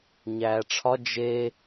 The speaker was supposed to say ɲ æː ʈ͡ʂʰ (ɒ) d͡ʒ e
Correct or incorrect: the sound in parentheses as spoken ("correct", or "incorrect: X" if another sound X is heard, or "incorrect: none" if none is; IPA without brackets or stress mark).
correct